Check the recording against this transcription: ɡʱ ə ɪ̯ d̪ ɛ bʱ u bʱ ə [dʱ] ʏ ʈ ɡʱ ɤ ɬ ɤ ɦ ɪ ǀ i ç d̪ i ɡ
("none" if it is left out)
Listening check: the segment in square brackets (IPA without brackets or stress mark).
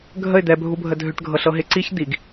dʱ